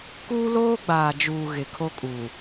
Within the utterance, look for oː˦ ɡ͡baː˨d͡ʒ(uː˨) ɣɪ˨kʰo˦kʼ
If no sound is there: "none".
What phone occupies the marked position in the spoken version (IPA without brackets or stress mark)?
uː˨